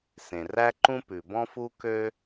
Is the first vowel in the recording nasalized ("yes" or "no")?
yes